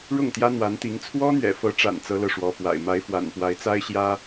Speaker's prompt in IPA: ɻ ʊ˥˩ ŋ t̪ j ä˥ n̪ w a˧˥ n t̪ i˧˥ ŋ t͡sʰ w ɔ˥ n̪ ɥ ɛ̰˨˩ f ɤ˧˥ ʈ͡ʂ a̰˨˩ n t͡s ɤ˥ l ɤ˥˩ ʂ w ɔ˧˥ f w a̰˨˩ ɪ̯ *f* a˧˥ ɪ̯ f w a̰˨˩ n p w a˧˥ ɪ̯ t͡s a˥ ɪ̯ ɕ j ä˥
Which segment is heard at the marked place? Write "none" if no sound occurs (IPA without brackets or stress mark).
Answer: m